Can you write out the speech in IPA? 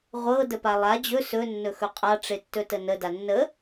ʁʷ ɤ d ə p a lˠ a d͡ʑ ɵ s ɵ nː ɵ x ɵ qʼ a ʈ͡ʂ e tː ɵ t ə n ə d a nː ə

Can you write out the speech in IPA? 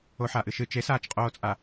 o ħ aː ʔ ɨ ʃ ɨ t͡ʃ e s aː t͡ʃ qʼ oː t͡sʼ a

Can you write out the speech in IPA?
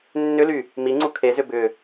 nː ʏ l y | m i ŋ͡ǀ u kʰ e z ʏ b ʏ

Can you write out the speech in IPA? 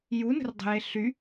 j u n ə̤ r dˤ ə̤ j e ɬ y

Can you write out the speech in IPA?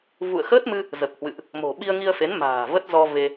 v ṵ˧˨ ə̯ x əː˦˥ t̚ m ɨ˧ | z ə˨˩ p̚ h w ɨ̰˧˨ ʔ | m o̤˨˩ ɓ i˧ ə̯ ŋ i˧ ə̯ f e˨˦ n m a̤ː˨˩ v ə˦˥ t̚ z ɔ˧ v e˧

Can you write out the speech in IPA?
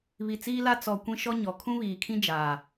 β i˨ t͡s iː˦ l a˦ t͡s ɔ˨ kʷ ĩ˦ ʃ ɔ˦ ɲ ɔ˨ kʰ ũ˦ β iː˨ kʰ ĩ˦ d͡ʒ aː˨

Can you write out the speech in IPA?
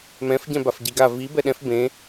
m ɛ̃ f ɟ ɛ̃ b a f ɟ i ɡ a v i b ɛ ɗ ɛ̃ f b ẽ

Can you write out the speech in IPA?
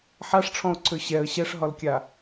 ħ a ʂ ʈ͡ʂʰ ɔ̃ ʊ̯ ǀʰ ø ɕ ɛ ə̯ ɕ ɛ ʂ ɦ ɒ l kʲ a

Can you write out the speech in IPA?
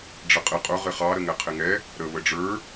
ɖ͡ʐ ə qʼ ɪ qʼ ʊ ʁ ɪ χ ɑ ɾ ə ŋ ɛ qʰ ɪ ŋ ɛ | ɾ ə β ə ɖ͡ʐ ə˞

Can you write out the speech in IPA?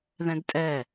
ð ɛ̃ d tʼ ɛ

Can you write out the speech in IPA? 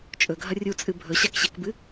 t͡ʃʼ ɵ ɡʱ ɐ rʲ u t͡sʼ ɨ bʱ ɵ ɕ a k ɕ e k b ɨ

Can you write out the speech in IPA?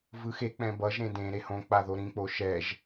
v ɯ x e k͡p ɛ̃ b ʌ ʒ ɾ ẽ d ẽ ɾ e h õ k͡p a ð o ɾ ĩ k͡p o ʃ ɛ ʒ

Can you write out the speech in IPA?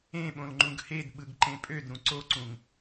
ẽ ɓ õ l ŋ͡ǃ ũ ɡ h e d ɓ ɯ ɡ ǃ ẽ pʼ ø d ɾ ũ ǀ o ǀ ũ ŋ

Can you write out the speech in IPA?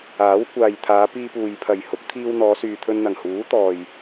aː˨˥ w kʷ aː˨ j t̪ʰ aː˨˧ p iː˧ p uː˨ j pʰ ɐ˨˩ j h ʊ˨˥ k̚ t̪ʰ iː˧ w n̪ ɔː˨˧ s yː˨ t̪ʰ ɵ˧ n n̪ ɐ˨˩ ŋ h uː˨˥ t̪ ɔː˨ j

